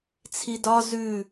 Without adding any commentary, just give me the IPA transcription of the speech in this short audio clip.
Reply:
t͡sʰ i d ɒ z ʉ

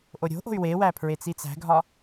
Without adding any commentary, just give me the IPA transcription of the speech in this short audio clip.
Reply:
ʔ o ɾʲ o̤ ʔ o̤ y̯ w e w æ pʰ ɹ e t͡s i t͡s æ̤ ɡʱ ɒ

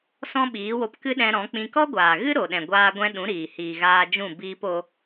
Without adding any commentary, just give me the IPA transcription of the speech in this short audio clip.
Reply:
s ɔ̃˦ ɓ iː˨˦ w o˧ p k ɨ˦ ɗ ɛ̃˧ ɾ ɔ̃˨˦ k͡p ĩ˧ k ɔ˦ ɡʷ aː˨ ɣ ɨ˦ ɾ o˨ ɗ ɛ̃˨ ɡʷ aː˧ ɡʷ ɛ̃˧ ɗ ũ˨˦ ɾ iː˨ h iː˨ ɣ aː˧ d͡ʒ ũ˦˨ b iː˧ p o˧

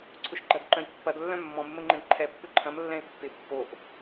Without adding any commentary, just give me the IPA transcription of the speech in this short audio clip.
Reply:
ǀʰ ʊ ʃ ɡ͡ǃ ɐ d ǃ œ̃ j pː ɐ d lː œ̃ mː ɔ̃ m ə m ə ŋ͡ǃ ɛ̃ d ǃʰ ɛ pː ʊ ǃʰ ɐ̃ m lː ɛ̃ ɪ̯ pː ɪ pː o ʔ

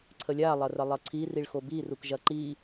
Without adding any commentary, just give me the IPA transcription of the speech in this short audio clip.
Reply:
ǀʰ ə lʲ a lˠ ɐ r ɐ lˠ ɐ ǀʰ i r i ɭ x o b i r u k ʒ ɐ ǃ i

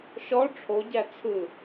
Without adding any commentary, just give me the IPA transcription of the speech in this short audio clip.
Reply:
ʃ ɔ ʈ͡ʂʰ o ɟ æ t͡sʰ ɯ

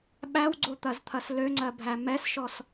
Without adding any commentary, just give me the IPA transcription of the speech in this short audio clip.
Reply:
ɓ æ w ɡ͡ǀ o t̪ ɐ z t̪ʰ ɐ s l ø ŋ͡ǀ ɜ bʱ æ m ɛ s ʃ ɔ s

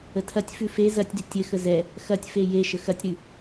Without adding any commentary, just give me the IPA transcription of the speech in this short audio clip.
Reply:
ə tʰ ɐ tʲ f ʉ f e z ɐ tʲ d ʏ tʲ ɘ x ə z ɛ | x ɐ tʲ f e j e ʃ ə x ɐ tʲ ɾ ʉ

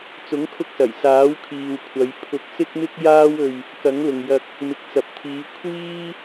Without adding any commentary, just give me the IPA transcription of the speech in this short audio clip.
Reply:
t͡s ʊ˨˥ ŋ kʰ ʊ˧ k̚ s ɐ˨˩ j s aː˨˥ w kʰ iː˨ w kʷʰ ɐ˨˧ j pʰ ʊ˧ k̚ s ɪ˥ k̚ m ɪ˥ k̚ j aː˥ w ɵ˧ ɥ | k ɐ˨˥ ŋ l ʊ˨ ŋ j ɐ˧ k̚ | m ɪ˨ k̚ t͡s ɐ˨ p̚ t̪ʰ iː˨˧ kʷʰ iː˥

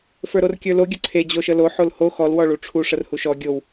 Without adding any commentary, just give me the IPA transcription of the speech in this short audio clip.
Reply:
f ə˞ ɾ o r kʲ ə˞ l o ɡʲ ə ǀʰ e d͡ʑ o ʃ ə l o ħ o l h o x ɔ l w ɔ ɭ u ʈ͡ʂʰ u ʂ ə r h u ʃ ɔ ɡʲ o w

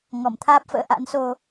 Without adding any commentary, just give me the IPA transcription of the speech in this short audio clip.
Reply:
ŋ ɔ˧˩ m t̪ʰ aː˦˥ p̚ f ə̰ː˧˥ ʔ a̰˧˥ n s o˧

